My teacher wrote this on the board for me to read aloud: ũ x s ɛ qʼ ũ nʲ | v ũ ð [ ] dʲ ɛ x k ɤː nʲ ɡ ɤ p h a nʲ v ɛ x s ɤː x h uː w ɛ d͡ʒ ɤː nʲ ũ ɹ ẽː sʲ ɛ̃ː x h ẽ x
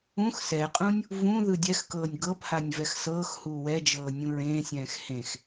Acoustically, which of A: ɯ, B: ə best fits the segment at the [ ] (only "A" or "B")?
A